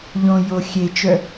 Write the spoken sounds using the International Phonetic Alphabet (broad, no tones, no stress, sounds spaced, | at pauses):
ʎ õ j o xʲ e t͡ʃ œ